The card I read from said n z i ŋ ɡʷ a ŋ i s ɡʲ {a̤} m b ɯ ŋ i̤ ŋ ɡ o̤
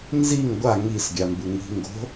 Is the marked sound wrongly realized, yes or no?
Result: yes